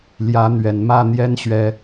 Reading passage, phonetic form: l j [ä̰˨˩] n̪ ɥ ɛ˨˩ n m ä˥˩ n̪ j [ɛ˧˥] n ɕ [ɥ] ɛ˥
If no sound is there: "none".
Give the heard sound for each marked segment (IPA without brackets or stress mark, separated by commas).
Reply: ä˧˥, ɛ˥, ɥ